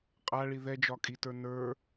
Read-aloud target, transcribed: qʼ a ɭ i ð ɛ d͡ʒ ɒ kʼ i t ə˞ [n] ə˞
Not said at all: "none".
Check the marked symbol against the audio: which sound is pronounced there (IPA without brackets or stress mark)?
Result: n